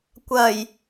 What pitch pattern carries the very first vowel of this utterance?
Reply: low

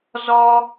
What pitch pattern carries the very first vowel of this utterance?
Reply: high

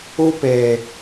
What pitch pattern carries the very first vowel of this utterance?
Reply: high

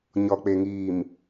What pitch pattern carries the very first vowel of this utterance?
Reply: low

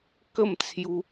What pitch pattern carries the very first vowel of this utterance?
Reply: falling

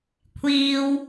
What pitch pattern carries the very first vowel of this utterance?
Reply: high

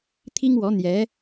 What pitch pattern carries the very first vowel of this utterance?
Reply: high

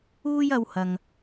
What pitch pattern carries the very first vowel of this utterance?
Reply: high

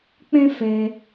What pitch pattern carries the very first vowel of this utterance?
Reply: high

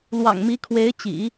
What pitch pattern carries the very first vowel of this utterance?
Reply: low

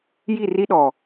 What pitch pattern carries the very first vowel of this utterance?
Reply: falling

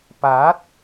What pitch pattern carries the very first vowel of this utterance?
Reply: rising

